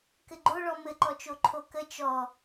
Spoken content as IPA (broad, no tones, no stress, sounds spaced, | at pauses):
k ɘ ɡ͡ǃ o ɭ ɔ m ɘ ǃ ɔ t͡ʃ o ǃʰ o k ə t͡ʃ ɔ